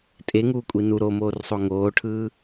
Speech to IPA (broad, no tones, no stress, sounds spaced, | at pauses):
tʼ e ŋ uː kʷʼ i n u ɾ o m oː r sˤ o ŋ oː ʈʰ ɯː